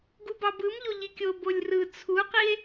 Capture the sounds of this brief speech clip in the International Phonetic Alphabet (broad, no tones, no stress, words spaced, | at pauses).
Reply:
ɡubɑbɯmʎo ʎikʲo bolʲrɯ t͡sʰuqie̯